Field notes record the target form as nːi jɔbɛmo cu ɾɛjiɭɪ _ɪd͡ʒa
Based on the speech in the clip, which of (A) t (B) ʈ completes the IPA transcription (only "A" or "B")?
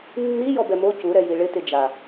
A